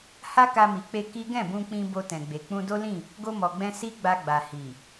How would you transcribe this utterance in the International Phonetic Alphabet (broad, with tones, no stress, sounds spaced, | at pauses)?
h a˦ k a˧ m i˨ k͡p e˧ k i˦ ɡ ɛ̃˦˨ b ũ˧ k͡p ĩ˧ b o˧ t ɛ̃˨ ɡ͡b e˨ k͡p ũ˧ d o˦ l ĩ˦˨ | ɡ o˧ m ɔ˨ ɡ͡b ɛ̃˧ s i˦ ɡ͡b a˧ ɡ͡b a˨ h i˨